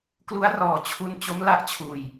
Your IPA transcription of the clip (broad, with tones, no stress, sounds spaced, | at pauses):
k l u˦˥ a̯ r ɔː˨˩ t͡ɕʰ u˧ n t͡ɕ o˦˥ m l a˦˥ ʔ t͡ɕʰ uː˧ j